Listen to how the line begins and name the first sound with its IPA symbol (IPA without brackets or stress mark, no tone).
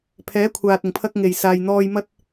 pʰ